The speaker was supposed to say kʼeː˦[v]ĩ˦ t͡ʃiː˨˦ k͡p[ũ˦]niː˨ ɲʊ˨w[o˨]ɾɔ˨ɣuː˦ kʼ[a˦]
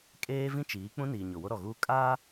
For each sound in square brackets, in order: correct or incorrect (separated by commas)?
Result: correct, correct, incorrect, incorrect